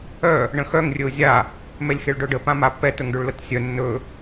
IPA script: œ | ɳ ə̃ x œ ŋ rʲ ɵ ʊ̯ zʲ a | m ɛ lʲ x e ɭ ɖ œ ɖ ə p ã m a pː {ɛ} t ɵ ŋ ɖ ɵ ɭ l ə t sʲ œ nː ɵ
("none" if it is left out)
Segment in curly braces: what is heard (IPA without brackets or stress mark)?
ɛ